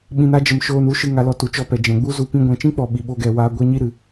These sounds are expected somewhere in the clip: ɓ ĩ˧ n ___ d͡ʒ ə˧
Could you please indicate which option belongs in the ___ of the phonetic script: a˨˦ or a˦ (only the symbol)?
a˦